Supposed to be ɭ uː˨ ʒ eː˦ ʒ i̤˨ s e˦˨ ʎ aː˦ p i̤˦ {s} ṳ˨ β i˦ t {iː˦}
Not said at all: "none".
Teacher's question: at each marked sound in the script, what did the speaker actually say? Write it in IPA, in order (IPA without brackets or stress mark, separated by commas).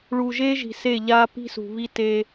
s, eː˦